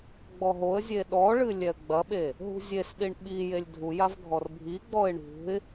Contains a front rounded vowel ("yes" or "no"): no